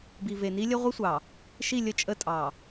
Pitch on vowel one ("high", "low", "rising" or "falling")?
low